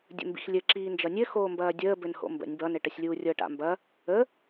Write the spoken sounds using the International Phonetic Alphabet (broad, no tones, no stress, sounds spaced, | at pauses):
dʲ ə̰ m b ḭ x lʲ ɘ ǁ iː n d͡ʒ ʌ nʲ ɘ x oː m b ɐː dʲ əː b ɘ n h o̰ m b ə̰ nʲ b ʌ n ɘ ʈ ɐ sʲ lʲ uː rʲ ɤ ʈ a̰ m b ɐ | ə